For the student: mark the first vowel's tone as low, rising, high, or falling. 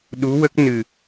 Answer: rising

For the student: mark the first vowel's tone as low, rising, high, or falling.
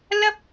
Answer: high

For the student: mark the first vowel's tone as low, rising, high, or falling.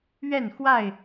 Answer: falling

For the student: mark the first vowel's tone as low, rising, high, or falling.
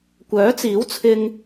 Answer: rising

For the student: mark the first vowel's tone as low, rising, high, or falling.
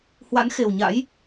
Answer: rising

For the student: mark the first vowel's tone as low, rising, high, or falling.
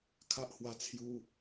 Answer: high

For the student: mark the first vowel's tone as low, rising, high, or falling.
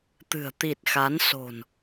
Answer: low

